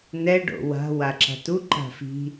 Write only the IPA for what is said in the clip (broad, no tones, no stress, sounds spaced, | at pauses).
n ɛ ɖ o̰ w a̤ w a ǁ a̤ t u ǃ a̤ f i̤